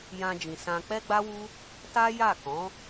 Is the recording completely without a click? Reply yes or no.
yes